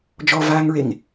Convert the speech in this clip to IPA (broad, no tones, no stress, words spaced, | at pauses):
d͡ʒɔvaːŋɹeŋ